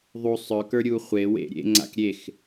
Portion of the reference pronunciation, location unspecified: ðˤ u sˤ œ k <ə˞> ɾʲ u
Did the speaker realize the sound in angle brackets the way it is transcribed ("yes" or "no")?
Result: yes